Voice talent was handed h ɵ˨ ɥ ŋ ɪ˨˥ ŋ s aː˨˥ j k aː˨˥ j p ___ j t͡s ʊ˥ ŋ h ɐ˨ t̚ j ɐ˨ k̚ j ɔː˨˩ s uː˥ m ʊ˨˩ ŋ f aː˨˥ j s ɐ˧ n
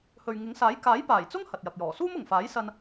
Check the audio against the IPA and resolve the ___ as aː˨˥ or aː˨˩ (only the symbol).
aː˨˩